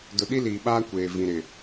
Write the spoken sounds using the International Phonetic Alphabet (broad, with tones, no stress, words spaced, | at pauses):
dʊ˨ɗi˦liː˨ɓaː˦ kʷeː˨vĩ˨ ɾɪ˨